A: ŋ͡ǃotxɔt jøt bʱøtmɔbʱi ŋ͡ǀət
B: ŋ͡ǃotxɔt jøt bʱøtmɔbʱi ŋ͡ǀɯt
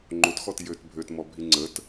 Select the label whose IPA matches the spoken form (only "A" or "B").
A